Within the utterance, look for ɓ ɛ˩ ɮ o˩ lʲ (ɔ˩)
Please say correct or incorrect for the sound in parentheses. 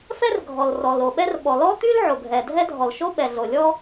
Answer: incorrect